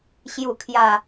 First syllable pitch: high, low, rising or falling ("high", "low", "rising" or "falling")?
low